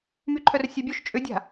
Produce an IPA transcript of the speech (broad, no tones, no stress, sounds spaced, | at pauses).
m y ǃʰ œ r sʲ œ bʲ o ʃ t͡ʃʼ ʏ dʲ a̤